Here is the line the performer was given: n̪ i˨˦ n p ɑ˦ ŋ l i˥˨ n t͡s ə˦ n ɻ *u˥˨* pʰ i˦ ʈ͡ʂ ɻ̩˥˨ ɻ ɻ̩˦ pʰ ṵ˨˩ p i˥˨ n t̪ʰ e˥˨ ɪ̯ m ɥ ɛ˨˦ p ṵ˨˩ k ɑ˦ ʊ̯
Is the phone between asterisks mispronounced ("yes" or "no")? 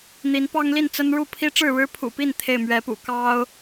no